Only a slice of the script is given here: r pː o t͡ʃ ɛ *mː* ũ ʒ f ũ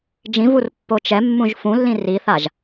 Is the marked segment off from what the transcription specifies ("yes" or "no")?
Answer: no